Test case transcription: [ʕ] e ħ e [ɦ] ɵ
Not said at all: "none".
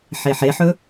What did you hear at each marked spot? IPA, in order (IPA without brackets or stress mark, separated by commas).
ħ, ħ